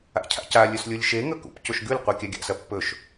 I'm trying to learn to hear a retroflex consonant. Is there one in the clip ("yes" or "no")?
no